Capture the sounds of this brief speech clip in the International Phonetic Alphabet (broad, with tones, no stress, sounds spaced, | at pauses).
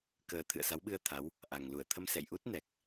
k əː˨˩ t̪ʰ ɨ̰˧˨ ə̯ s a˨˦ w ɓ ɨ˧ ə̯ t̪ʰ a˨˦ w | ʔ a˨˩ ŋ l u˧˩ ə̯ t̪ʰ ə˧ m s ɛ̰˧˨ j ʔ u˦˥ t̚ n ɛ˨˩ k̚